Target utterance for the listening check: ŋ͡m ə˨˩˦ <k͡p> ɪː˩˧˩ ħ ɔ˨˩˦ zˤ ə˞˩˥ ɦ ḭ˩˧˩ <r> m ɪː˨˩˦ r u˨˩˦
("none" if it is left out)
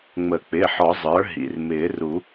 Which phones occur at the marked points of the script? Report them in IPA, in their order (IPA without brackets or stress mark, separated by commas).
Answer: k͡p, r